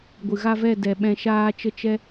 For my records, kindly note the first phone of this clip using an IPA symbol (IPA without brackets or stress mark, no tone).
ɡʷ